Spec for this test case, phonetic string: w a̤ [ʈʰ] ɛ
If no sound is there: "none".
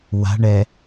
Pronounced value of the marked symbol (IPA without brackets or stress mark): ɳ